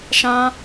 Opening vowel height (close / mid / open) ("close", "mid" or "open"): open